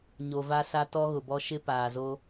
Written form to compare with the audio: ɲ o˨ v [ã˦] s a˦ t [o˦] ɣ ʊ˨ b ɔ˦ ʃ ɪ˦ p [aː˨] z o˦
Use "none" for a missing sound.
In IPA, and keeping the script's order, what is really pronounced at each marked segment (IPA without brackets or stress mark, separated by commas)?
a˦, ɔ˦, aː˨